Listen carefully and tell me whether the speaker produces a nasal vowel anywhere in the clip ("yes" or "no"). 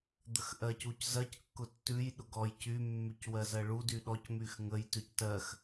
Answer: no